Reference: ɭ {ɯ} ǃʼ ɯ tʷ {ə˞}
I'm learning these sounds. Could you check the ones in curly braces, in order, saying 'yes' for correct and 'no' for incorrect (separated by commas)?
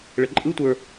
no, yes